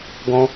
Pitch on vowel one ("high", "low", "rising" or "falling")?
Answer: high